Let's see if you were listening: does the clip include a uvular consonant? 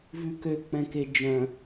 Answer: no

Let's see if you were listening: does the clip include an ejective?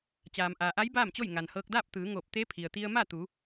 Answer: no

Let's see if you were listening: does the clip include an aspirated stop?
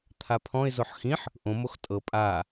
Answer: yes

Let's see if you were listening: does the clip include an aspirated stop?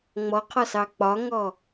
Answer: yes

